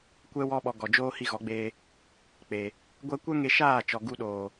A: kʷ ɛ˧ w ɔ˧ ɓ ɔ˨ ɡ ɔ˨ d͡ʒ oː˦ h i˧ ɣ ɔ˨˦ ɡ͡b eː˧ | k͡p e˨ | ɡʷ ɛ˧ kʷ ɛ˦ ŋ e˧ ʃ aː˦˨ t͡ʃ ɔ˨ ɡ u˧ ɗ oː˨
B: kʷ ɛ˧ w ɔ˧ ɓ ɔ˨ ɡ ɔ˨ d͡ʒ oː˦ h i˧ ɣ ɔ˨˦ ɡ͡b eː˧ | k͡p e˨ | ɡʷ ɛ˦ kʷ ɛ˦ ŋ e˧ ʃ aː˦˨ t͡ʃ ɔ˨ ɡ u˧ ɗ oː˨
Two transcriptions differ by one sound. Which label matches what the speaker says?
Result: A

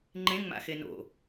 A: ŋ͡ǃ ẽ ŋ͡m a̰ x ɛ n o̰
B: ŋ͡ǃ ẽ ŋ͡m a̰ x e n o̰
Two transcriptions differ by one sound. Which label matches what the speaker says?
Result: B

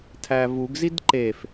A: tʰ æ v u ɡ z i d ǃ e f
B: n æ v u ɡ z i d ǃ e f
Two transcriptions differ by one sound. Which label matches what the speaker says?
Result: A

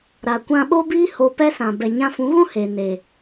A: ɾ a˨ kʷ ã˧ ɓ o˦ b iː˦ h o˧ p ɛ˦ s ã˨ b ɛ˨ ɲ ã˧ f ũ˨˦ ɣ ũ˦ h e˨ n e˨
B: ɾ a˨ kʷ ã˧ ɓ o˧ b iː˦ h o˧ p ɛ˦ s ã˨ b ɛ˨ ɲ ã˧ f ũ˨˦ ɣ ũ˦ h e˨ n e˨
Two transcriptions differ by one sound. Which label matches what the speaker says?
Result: A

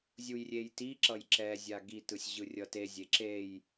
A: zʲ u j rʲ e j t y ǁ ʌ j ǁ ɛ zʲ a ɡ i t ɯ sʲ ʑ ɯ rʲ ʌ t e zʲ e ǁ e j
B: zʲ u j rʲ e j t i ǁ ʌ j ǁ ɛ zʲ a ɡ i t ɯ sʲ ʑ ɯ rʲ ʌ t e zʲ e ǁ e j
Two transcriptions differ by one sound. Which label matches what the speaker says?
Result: B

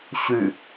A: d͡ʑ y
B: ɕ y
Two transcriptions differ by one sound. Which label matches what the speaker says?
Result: B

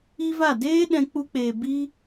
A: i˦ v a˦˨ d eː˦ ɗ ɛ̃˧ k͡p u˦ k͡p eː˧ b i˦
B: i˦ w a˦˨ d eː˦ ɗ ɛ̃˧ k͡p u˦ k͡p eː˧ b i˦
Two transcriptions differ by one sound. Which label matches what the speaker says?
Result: A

